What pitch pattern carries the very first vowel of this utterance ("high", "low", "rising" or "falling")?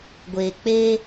low